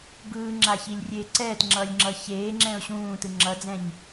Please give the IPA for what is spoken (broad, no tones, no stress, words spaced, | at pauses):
bɯːŋ͡ǁaçilʲrʲeː ǀɛːtŋ͡ǁʌːlʲŋ͡ǁʌ çeːŋ͡ǁɛ̃ʊ̯ ɕũːtɯ ŋ͡ǁʌd͡zɛ̃ɲ